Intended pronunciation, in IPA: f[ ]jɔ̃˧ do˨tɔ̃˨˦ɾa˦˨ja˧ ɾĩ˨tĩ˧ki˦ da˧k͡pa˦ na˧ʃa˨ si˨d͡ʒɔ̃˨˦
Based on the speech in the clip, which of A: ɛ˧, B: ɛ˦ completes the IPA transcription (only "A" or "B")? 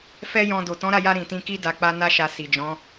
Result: B